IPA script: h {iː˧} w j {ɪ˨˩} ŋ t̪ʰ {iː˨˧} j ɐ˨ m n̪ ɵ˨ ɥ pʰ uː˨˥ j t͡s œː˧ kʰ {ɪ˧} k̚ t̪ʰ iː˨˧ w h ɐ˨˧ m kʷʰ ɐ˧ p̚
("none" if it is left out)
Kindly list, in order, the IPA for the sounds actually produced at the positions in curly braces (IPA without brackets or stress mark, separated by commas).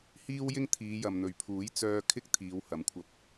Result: iː˥, ɪ˥, iː˨˧, ɪ˥